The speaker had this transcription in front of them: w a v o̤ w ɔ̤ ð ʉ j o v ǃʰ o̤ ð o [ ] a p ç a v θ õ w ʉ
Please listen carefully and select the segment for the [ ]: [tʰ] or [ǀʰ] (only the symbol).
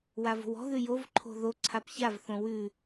ǀʰ